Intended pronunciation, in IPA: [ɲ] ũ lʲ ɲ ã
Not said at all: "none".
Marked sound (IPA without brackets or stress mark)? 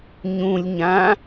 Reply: ɲ